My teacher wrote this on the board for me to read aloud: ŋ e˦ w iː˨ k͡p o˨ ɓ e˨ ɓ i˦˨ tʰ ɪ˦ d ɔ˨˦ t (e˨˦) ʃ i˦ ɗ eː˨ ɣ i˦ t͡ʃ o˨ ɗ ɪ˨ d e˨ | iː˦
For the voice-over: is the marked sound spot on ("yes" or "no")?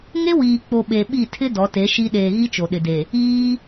yes